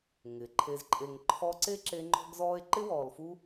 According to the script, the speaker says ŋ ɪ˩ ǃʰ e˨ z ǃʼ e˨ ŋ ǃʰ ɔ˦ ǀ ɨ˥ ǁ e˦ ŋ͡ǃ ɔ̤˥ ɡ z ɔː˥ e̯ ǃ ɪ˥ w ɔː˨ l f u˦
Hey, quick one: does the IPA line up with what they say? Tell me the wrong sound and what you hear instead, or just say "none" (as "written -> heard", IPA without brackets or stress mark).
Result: ɨ˥ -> e˥